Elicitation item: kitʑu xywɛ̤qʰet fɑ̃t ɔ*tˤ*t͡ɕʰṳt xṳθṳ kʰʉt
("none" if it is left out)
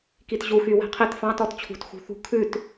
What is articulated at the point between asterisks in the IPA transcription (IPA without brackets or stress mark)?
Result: t